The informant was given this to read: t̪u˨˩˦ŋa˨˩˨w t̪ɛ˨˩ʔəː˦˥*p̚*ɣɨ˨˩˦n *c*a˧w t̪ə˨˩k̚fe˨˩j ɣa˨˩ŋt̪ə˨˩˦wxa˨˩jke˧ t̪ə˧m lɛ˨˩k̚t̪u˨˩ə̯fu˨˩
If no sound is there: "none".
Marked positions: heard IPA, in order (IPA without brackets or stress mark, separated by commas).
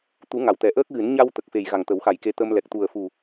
k̚, ɲ